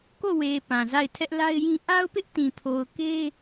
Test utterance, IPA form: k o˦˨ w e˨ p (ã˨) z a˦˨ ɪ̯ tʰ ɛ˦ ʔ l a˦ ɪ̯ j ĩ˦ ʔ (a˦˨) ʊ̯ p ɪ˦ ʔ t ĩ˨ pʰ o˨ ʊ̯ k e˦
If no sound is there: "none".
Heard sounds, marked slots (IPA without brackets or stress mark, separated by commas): ã˨, a˦